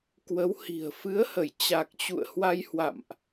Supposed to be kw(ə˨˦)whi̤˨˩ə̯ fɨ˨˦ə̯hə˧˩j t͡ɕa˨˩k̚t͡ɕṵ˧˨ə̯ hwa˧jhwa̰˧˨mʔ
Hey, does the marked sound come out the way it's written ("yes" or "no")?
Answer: yes